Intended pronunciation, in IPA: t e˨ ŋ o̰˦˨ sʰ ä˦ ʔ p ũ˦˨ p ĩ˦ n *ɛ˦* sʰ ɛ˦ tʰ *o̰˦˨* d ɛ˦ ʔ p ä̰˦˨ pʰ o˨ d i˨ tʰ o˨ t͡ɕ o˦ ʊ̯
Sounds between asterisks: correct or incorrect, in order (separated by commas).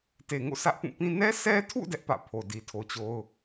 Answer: correct, incorrect